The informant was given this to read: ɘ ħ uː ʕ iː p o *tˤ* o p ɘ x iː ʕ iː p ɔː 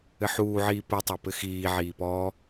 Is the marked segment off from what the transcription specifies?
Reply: no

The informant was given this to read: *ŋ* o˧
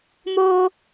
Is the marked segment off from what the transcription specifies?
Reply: yes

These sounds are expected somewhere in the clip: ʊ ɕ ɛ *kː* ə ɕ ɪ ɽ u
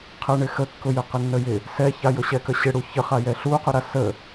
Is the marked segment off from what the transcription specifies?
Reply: yes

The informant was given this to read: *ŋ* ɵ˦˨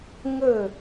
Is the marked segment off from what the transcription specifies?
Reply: no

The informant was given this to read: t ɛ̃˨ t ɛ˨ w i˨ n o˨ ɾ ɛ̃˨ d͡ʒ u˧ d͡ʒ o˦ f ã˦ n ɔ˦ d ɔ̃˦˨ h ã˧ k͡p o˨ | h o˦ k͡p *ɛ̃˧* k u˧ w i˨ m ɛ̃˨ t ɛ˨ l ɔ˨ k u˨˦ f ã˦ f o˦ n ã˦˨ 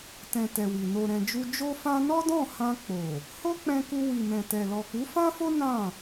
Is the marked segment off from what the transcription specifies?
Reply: no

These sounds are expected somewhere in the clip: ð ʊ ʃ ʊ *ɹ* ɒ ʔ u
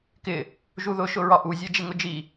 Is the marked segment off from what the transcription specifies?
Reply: no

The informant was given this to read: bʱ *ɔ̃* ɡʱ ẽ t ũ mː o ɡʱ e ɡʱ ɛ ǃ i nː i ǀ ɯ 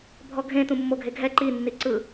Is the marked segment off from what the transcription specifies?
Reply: yes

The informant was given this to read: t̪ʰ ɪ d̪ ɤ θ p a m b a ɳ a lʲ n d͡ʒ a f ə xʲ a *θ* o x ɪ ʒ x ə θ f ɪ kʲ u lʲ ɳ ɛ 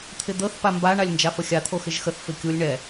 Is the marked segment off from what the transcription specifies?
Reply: yes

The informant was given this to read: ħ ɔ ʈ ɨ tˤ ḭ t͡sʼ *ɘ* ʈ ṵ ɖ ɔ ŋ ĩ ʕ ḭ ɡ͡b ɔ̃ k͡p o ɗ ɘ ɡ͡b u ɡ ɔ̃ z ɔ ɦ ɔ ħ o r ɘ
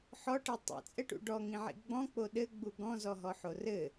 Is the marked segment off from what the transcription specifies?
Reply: no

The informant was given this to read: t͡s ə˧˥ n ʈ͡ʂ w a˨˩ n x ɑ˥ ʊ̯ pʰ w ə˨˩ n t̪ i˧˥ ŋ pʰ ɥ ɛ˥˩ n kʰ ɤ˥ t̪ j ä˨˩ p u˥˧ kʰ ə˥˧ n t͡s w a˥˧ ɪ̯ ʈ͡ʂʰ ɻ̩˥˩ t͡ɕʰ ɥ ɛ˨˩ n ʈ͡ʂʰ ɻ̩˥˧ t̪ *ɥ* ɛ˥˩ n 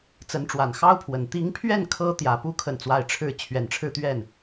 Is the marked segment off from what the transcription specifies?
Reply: no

